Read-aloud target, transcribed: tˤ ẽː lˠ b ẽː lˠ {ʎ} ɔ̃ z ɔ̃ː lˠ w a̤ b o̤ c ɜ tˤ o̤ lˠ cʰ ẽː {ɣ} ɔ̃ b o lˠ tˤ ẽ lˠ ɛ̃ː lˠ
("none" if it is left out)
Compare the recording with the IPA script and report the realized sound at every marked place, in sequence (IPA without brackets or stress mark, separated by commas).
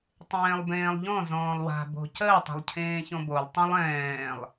ʎ, ç